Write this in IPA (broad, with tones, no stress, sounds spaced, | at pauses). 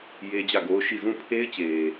j e˦ d͡ʑ ä˦˨ ɡ o˦ ʊ̯ ʃ i˦˨ z ũ˦˨ pʰ e˦ ɪ̯ t͡ɕ e˨